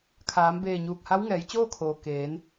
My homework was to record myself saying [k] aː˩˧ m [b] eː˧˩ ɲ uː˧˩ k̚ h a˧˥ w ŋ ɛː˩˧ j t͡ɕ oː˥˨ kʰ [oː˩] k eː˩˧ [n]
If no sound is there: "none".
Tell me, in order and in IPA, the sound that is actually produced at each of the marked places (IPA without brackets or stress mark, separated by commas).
kʰ, b, oː˩, n